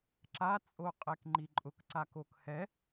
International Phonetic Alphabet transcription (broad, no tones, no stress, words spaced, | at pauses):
ǁat͡sʼoqʼek ŋ͡ǃiǃʼʊkǀak okhɛ